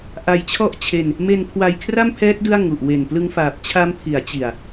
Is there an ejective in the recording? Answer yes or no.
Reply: no